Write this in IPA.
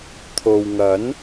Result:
t̪ʰo˨wŋɐ˨˥n

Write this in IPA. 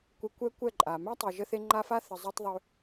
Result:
kʷɛ˧kʷɛ˦ kʷɛ˦˨ǃʼa˨ mæ˦tˤy˨ʒə˧θe˧ ŋ͡ǃa˦fa˦ θə˨zˤø˧tˤðˤø˧

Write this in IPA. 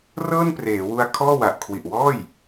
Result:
rɤː˥˩npreː˩˦wu˧a̯ kʰɔː˥˩wa˨˩ʔ kʰwi˨˩ʔwɔː˥˩j

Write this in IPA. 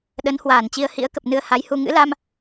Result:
ɗə˨˦nhwaː˧˩nt͡ɕi˧ə̯ hḭ˧˥ə̯kə˨˩p̚nɨ˧ə̯ ha˨˦jhu˧ ŋɨ̰˧˥la˧m

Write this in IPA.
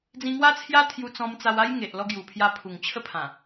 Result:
d͡zĩ˧ŋwa˦t͡sʰja˦t̪ʰju˧ t͡sɔ̃˧mt͡sa˧wa˦j ŋe˨ʔlɔ˧ ɡju˨˩pʰja˧pʰu˨˩ŋ t͡ɕʰə˦pʰã˨˩

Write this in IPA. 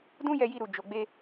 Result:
dũ˦jɛ˧ji˧ɾu˨ d͡ʒo˨ɡ͡be˧

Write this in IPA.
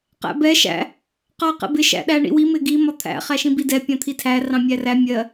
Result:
qæ̰bɛ ʃæ̰ | qɑ qɛ̰bɪ ʃæ̰ɗæɳḭwi mɪɡi mɒt̪ʰæ̰ χæʃĩbidɛ pʲɑ̃t̪ʰitʰæ rɑ̃mʲæræ mʲɜ

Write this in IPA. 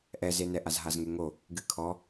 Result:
ʔɛzenɛ ʔazɦazŋeŋo | ɡɨkʰɔ

